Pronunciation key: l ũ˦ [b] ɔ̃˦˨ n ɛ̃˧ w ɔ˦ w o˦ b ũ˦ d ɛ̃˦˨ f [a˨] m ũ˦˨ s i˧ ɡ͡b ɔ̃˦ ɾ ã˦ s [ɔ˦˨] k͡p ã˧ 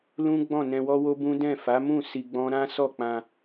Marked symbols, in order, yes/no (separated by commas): no, no, yes